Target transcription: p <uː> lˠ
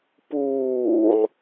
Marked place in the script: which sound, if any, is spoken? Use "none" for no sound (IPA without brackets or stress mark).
uː